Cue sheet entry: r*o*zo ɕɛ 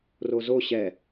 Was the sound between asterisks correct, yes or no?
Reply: yes